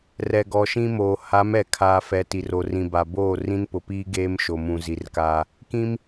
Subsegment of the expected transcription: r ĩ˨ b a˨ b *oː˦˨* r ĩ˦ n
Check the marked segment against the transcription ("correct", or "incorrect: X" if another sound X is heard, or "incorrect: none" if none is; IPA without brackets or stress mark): correct